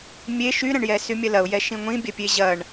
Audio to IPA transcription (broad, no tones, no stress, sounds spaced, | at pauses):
mʲ e ʃ y ɾ ɐ̃ ɳ j ɛ s y mʲ ɐ l ɐ ʊ̯ j ɛ ʃ ĩ ŋʷ ĩ bʲ ɐ pʲ e ʑ ɐ ɳ